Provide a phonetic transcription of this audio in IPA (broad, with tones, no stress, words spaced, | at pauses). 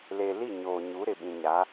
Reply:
le˨li˦˨ ɲoː˨ɲu˨˦ ɾɪ˨ɓĩ˨ɲa˨˦